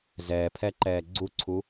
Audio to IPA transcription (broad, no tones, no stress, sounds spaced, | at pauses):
z ɛː pʰ ɛ ǃ ɛː ɡ͡ǀ u ǀʰ u